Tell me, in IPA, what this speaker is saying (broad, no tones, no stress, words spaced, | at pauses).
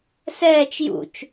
sɛːt͡ʃ jṵt͡ʃ